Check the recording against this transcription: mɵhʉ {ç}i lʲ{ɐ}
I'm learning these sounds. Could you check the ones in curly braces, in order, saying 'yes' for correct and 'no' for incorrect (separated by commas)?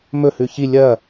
yes, yes